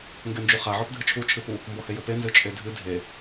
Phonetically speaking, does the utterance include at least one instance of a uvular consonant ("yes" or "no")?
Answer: yes